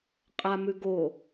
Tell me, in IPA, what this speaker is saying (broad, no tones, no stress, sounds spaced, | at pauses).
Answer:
qʼ a m ʉ ɡ o